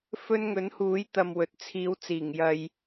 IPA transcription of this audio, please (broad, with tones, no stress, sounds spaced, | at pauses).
f ɵ˥ n ŋ ɵ˨˥ n h uː˨˥ j t̪ ɐ˨ m w ɵ˨ t̚ t͡sʰ iː˨˥ w t͡s iː˨˩ ŋ j ɐ˨ j